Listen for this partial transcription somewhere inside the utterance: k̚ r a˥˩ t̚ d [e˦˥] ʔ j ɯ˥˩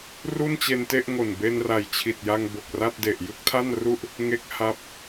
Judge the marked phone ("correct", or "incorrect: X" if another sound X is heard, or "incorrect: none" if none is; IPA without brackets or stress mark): incorrect: e˨˩